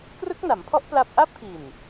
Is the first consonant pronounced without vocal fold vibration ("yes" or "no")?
yes